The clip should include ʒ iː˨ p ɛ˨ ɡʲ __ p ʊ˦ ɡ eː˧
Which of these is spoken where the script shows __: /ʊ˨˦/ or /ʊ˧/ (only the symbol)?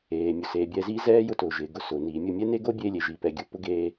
ʊ˨˦